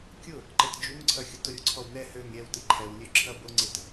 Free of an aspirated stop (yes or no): no